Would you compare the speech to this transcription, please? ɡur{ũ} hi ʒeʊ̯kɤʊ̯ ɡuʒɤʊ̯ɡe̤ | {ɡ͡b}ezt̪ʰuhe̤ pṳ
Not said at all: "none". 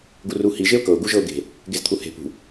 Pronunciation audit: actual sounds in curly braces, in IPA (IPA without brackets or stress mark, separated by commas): u, ɡ